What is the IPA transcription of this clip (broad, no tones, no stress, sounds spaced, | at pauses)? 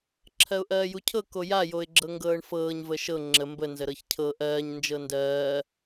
ǁʰ ɜ ʊ̯ ʔ ɜː j u cʰ ɤ k o j a j o ɪ̯ ɡ͡ǁ ɤ ŋ ɡ ɤː ɳ f ɤː ɲ v ə ʃ ɤ ŋ͡ǁ ə m b ə n z ə ɾ ɤ ç cʰ ɤ ʔ ɜː ɲ n d͡ʒ ɤ n d ɜː